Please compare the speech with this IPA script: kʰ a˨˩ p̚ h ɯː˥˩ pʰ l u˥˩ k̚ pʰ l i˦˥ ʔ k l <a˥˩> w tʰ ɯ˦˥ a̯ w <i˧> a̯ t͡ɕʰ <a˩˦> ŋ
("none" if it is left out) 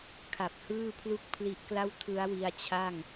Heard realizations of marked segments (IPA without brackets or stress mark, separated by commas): a˥˩, i˧, a˥˩